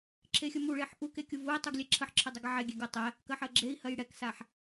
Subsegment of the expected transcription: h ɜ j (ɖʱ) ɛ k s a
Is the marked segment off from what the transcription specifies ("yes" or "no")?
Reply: yes